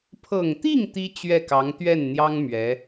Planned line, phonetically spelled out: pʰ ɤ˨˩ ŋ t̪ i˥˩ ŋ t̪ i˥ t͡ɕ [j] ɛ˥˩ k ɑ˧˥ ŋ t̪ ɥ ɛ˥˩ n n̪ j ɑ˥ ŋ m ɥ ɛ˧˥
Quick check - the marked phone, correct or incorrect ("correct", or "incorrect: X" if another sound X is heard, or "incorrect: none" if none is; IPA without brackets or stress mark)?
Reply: incorrect: ɥ